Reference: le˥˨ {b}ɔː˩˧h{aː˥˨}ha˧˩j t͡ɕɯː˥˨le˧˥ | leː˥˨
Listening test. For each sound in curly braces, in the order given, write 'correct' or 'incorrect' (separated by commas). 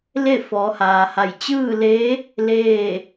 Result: incorrect, incorrect